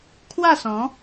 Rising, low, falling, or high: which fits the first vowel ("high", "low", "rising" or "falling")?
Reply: falling